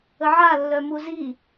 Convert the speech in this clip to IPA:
əʕalːœ muzi

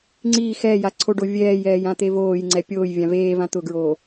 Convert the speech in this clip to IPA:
ŋ͡ǀiː xɛːja ǀʰoɖo vʲɛːjɛːjã t̪evoːjŋ͡ǀɛ pʲoːj vʲãveː vãt̪ʊɡɹoː

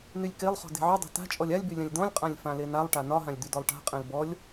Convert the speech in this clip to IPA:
nylʲkelˠχɔ̤ de̤ʕydˤe̤ ta̤t͡ʃʼɔlʲ alʲby lʲãlʲdɔ̃lʲqʼãlʲ fãlenalˠʈa nɒɦãlʲ d̪ydɔlˠʈa̤qʼẽl bɔlʲ

